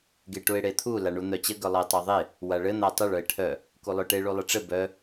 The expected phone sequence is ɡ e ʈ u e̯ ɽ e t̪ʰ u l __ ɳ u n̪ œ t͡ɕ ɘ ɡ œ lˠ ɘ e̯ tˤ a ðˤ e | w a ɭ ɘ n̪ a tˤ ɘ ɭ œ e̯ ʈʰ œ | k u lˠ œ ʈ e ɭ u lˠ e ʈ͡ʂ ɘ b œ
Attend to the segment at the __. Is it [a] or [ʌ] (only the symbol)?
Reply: a